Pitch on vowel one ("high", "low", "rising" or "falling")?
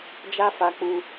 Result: high